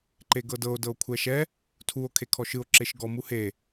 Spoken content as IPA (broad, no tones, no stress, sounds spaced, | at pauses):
ǃ e ɡ ɤ d ɤ o̯ d ɤ o̯ kʷʰ ɛ ʃ ɛ | tʰ u o̯ kʰ e kʰ ɔ ʃ ɯ o̯ ǁ e ʃ ɡ ɔ m u h e